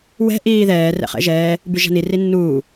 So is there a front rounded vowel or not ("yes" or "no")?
yes